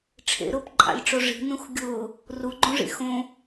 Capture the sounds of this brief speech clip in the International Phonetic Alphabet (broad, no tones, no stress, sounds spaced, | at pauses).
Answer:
ʈ͡ʂʰ ḛ ɾ ʊː p ǃʼ a̰ lʲ ʈ͡ʂ o ʐ i̤ n ũ x ɡʲ ʊː | r u ɡ͡ǃ ũ ʐ ḭ x õ